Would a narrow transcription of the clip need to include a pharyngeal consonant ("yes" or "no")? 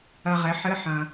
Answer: yes